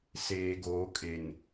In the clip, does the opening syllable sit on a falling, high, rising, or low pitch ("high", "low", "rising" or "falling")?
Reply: low